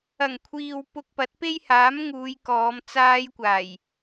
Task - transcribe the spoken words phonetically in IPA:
ɐ˨˩ ŋ kʷʰ iː˨ w p ʊ˧ k̚ p ɐ˨˥ t̚ p e˥ j h aː˨˥ m ŋ uː˨˧ j k ɔː˨˧ m t͡s aː˧ j kʷ aː˨˩ j

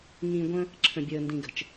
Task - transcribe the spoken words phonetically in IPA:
ŋ ĩ˨ ɡʷ ə̃˦ | ǁʰ ə̃˨ bʲ əː˨ n d ĩ˨ ɡ ə̤˨ t͡ʃ

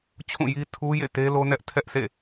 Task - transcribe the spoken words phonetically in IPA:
t͡ɕʰ ũ˦˨ j i˦ tʰ u˦ j ḛ˦˨ t e˦ l o˦ n ɛ˦ ʔ tʰ ɛ˦ ʔ s ḛ˦˨

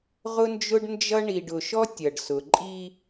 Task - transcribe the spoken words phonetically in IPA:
ʁ ʊ˦ n d͡ʒ ʊ˦ ɖ n d͡ʒ ʌ˦ ɳ i˨ ɖ ʊ˨ ʃ ɔ˦ tʲ ʌ˨ ɖ s ʊ˨ ǃʼ i˦

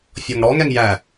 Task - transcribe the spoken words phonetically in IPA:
fʲ ɔ ŋ ɽ ɔ ŋ ɛ ŋ j æ

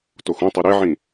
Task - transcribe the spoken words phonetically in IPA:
t o x ũ tˤ ɯ ɾ e ʕ ĩ

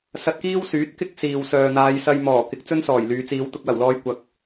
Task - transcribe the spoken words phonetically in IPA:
s ɐ˧ t̚ k iː˥ w s yː˨˥ t̚ k ɪ˥ k̚ s iː˨ w s œː˨ n̪ aː˨˧ j s ɐ˧ j m ɔː˨˩ k ɪ˨˥ k̚ t͡s ɵ˥ n s ɔː˨˩ j l yː˨ t͡s iː˨˧ w t̪ ʊ˧ k̚ w ɐ˨˩ w l ɔː˧ j kʷ ɐ˨ k̚

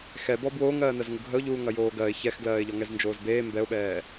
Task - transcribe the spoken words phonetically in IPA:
x ɛ b ɔ b w oː ŋ ɜː n ɜ z ŋ u ɡʱ ə ʊ̯ ʎ uː ŋ ɐ j oː ɡ ɜ ɪ̯ ç ɛ x ɡ l ɜː ɪ̯ ʎ ɔ ŋ ɛ z n d͡ʒ oː z b eː m b ɛ ʊ̯ ɓ ɛː

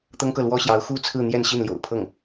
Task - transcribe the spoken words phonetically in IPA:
t̪ ɤ˥ ŋ k ɤ˨ l w ɔ˥ ɕ j ɑ˧˥ ʊ̯ x u˥˧ t͡sʰ ɹ̩˥˧ n̪ j ɛ˥˧ n ɕ i˥˩ n l j o̰˨˩ ʊ̯ pʰ ɤ˥˩ ŋ

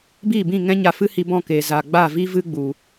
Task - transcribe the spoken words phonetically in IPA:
b iː˦˨ b ĩ˦˨ ŋ ɛ̃˦ ɲ a˧ f ɨ˦ h i˧ b ɔ̃˦˨ k eː˨ z a˨ ɡ͡b a˦˨ v i˦ v ɨ˦ ɡ͡b u˨

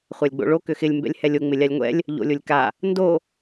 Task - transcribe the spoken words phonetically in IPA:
χʷ a lʲ ɡ͡b o̰ ɭ o k ʏ x ɪ lʲ m b ɛ̰ lʲ h ɛ lʲ o ŋ͡m ɪ lʲ a lʲ ŋʷ ɛ̰ lʲ | ʎ o̰ lʲ o lʲ k a | n d o

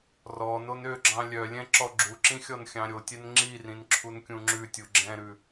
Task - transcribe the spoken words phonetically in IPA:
r ɔ n o n ø ɡ͡ǁ ɑ̃ lʲ œ lʲ ɛ̃ ǁ ɔ ɡ͡ǁ u ǁ ĩ xʲ ɔ n xʲ ɑ̃ ɾʲ o tʲ ɛ n ŋ͡ǁ i r ĩ n ǁʰ u n kʲ ũ ŋ͡ǁ ʉ tʲ u ɡ͡ǁ ɛ̃ ɾ ʉ

